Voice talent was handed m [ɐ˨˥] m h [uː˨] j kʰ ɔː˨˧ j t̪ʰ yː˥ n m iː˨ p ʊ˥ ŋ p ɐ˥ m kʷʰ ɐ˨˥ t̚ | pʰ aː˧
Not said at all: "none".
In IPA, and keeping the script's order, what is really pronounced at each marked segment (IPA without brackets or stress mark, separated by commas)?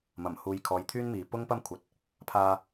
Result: ɐ˨˩, uː˨